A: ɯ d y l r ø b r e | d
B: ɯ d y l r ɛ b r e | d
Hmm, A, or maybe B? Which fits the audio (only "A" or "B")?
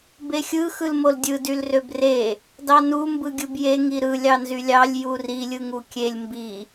A